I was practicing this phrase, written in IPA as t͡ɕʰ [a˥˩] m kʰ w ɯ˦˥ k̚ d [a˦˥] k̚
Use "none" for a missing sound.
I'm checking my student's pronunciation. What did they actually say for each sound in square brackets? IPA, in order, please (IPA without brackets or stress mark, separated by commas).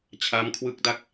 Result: a˦˥, a˦˥